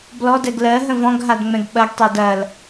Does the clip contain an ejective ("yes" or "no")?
no